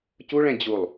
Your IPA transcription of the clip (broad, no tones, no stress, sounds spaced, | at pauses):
c u ɭ ɛ̃ d͡ʑ u lˠ